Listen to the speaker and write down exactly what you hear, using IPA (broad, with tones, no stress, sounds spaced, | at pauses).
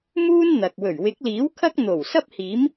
m uː˥ n n̪ ɐ˨ k̚ w ɵ˨˩ ɥ w ɪ˨˥ k̚ l iː˨˥ w kʰ ɐ˥ k̚ n̪ o˨˩ w s ɐ˥ p̚ h iː˨˥ m